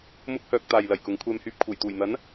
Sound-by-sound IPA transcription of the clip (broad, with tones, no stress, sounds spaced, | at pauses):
m ʊ˥ k̚ h œː˧ k̚ t̪ aː˨ j l ɐ˨˩ j k ʊ˨˧ ŋ kʷʰ ɛː˧ m h yː˧ p̚ kʰ uː˨˩ j t̪ uː˨˩ j n̪ ɐ˨˥ n